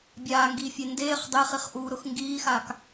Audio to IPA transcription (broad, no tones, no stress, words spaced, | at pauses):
bʲaːŋɡiːfʲe ndeːχ dˤeχiχʔuːɾʊx ŋɡiːxaːk